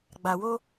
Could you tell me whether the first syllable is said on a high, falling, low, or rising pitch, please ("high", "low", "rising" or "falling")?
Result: low